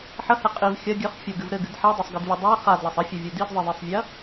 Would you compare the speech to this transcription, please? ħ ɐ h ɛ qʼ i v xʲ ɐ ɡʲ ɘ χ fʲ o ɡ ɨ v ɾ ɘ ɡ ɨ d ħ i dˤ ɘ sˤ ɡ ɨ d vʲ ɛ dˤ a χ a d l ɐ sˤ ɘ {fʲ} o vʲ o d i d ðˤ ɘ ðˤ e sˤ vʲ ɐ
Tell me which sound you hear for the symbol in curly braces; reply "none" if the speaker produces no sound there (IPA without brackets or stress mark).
fʲ